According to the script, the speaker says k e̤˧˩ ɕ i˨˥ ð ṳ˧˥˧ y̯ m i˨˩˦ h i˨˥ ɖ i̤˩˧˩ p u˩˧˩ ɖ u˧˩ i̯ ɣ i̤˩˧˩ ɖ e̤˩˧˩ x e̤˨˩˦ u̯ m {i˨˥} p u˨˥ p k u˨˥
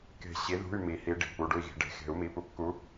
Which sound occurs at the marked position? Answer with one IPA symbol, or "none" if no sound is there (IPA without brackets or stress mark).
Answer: i˩˧˩